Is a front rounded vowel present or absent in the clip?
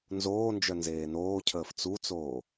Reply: present